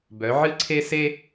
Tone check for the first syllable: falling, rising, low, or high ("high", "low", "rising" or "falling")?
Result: rising